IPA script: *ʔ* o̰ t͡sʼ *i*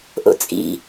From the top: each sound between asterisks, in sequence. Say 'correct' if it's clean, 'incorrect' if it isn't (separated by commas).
correct, incorrect